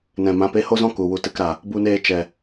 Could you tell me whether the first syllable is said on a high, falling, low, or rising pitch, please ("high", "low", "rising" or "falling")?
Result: low